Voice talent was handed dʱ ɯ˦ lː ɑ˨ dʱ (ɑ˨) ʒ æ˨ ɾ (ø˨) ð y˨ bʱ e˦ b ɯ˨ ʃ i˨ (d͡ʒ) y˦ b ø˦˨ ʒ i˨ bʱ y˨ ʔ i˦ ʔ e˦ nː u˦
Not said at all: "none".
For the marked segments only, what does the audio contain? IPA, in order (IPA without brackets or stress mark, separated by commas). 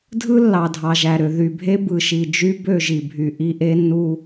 ɑ˨, ø˨, d͡ʒ